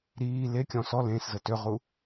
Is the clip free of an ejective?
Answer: yes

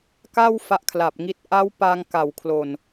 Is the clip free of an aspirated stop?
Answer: no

